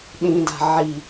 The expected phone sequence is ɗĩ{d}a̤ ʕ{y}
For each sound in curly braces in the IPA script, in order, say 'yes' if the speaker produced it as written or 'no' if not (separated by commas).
yes, no